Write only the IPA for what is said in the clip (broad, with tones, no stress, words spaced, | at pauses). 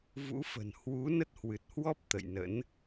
vṵ˧˥fə̤˨˩n hwu˨˦ nə˦˥t̚hwɨ˨˩t̚hwɔ˦˥p̚ t̪ə̰˧˨jnə̰˧˥n